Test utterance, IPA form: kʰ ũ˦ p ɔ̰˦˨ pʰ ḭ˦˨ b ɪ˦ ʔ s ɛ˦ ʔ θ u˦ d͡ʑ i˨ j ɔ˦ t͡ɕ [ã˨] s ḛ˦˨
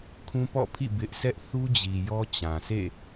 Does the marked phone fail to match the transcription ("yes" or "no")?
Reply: no